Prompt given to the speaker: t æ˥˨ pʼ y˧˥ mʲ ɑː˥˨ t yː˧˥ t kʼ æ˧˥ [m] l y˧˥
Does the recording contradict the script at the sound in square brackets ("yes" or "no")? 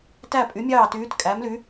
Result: no